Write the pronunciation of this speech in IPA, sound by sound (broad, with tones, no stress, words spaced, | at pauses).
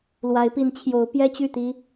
lwa˨˦ɪ̯pi˨˦nt͡ɕʰjo˨˦ʊ̯ pjɛ˦t͡ɕy˥˨t̪i˦